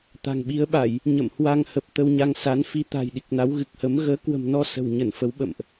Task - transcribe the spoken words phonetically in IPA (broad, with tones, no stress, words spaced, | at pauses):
t̪a̤˨˩ŋɓi˨˦ə̯ɓa˧˩˨j | ɲə̰˧˨mhwa˧ŋhə˨˩p̚ t̪ə˧wɲa˧ŋ sa˨˦nfi˧t̪a̤˨˩j ɗi˨˩k̚na˨˦w ɣɨ˨˩k̚hə˨˦m ɣəː˨˦kwə̤˨˩mnɔ˧ sə̤˨˩wɲə˧˩nfə˨˦w ɓə̰˧˨mʔ